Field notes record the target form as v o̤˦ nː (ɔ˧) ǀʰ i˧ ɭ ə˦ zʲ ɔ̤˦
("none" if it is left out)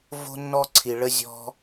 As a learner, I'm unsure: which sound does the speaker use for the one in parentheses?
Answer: ɔ˦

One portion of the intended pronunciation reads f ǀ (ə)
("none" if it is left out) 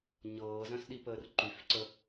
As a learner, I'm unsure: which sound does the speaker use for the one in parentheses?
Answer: ə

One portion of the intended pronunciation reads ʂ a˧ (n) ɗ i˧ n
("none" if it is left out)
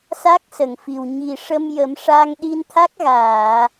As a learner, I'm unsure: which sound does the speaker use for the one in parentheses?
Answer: ŋ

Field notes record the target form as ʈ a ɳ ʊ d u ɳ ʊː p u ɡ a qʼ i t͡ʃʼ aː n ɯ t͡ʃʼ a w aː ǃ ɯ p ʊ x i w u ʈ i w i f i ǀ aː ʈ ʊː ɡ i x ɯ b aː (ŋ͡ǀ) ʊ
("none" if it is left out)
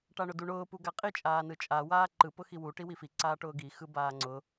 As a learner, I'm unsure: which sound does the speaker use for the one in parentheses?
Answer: ŋ͡ǀ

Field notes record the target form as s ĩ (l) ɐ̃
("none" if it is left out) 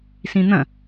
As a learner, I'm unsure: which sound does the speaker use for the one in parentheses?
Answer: n̪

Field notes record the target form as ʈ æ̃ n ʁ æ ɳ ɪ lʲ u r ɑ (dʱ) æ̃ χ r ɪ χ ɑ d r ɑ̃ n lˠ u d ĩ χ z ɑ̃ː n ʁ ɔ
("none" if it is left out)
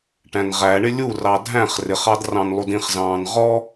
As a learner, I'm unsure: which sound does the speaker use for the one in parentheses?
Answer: dʱ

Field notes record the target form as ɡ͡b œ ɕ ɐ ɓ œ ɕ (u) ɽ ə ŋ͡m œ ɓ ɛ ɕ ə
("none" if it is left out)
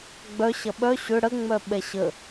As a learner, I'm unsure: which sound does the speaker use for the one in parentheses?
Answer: ʏ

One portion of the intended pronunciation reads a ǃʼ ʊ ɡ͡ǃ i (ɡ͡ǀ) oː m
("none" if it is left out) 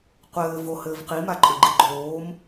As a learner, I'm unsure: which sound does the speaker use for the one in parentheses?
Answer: ɡ͡ǃ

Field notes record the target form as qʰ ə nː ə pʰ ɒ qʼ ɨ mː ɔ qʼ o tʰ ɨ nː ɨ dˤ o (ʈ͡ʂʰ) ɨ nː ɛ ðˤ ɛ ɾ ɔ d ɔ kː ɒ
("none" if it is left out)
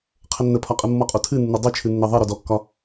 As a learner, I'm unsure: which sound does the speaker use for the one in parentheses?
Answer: t͡ʃʰ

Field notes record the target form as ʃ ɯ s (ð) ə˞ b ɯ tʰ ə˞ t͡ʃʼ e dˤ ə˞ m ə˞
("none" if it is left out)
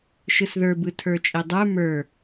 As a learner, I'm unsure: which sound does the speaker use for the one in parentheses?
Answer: ð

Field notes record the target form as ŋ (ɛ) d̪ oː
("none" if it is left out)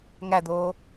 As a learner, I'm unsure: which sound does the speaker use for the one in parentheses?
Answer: æ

